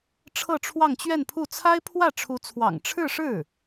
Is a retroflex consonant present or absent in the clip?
present